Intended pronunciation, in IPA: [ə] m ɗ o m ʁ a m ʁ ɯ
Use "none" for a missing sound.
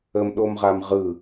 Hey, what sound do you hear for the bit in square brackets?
ə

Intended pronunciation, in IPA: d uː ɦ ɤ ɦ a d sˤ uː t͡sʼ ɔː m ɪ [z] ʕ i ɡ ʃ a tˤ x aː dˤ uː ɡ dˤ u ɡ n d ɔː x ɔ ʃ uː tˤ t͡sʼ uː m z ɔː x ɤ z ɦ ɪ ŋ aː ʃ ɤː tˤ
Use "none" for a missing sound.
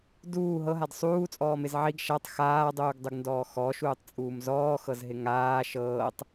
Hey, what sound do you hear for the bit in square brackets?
z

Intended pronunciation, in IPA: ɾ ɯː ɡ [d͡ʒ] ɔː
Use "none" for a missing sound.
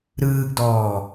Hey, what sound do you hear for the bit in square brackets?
d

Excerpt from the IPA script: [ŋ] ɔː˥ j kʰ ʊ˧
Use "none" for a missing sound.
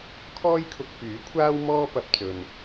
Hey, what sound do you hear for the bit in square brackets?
kʰ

